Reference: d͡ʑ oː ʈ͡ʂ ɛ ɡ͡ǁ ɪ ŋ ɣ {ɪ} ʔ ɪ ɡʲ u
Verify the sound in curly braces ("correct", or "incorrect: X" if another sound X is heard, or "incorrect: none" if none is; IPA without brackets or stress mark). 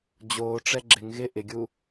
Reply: correct